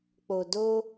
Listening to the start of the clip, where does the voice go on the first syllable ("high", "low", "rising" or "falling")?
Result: low